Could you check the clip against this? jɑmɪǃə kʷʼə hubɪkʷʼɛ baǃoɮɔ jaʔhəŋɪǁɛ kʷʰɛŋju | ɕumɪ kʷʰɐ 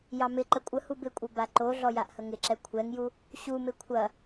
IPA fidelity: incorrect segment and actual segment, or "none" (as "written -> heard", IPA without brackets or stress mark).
none